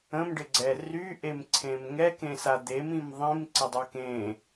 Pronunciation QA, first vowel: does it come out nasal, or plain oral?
nasal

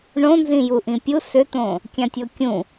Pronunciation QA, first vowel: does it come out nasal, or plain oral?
nasal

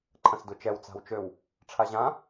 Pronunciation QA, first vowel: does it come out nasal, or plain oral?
nasal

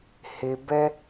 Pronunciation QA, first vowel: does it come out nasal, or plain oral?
oral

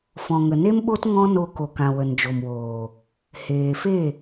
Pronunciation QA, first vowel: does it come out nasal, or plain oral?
nasal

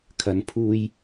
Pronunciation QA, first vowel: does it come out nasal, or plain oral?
oral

